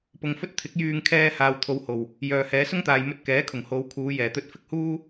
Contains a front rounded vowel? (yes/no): yes